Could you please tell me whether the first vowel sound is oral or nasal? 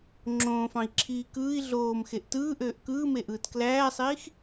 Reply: nasal